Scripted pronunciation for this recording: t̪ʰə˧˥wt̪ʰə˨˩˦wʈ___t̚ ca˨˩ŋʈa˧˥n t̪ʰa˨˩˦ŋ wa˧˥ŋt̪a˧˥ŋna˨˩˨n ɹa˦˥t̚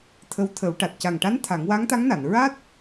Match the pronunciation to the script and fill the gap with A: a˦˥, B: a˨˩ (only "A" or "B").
B